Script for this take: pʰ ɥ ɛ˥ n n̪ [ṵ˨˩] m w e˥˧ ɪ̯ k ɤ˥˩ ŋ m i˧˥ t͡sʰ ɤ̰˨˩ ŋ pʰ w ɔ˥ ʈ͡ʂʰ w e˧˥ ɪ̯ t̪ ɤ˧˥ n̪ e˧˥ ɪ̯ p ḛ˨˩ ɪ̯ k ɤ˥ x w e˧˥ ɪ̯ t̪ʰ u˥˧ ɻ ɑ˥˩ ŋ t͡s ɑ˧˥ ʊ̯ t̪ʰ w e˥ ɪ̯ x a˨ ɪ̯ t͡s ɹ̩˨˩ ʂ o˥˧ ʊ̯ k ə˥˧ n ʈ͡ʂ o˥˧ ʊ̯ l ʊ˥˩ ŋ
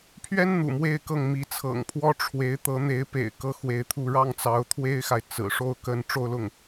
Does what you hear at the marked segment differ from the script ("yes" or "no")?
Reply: no